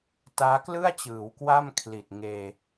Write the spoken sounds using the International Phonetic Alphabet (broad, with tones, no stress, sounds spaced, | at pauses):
t aː˦˥ k l ɯ˥˩ a̯ t͡ɕ ɯː˩˦ w k w a˥˩ m kʰ l i˨˩ t̚ ŋ eː˧